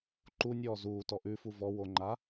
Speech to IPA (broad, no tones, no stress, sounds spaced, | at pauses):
ǃ u nʲ ɔː z uː t ɔ ʔ ʉ f u v ɔ w o ŋ͡ǃ a